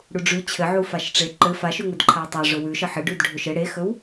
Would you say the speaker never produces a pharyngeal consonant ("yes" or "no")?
no